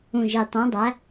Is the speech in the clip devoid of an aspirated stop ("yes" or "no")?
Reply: yes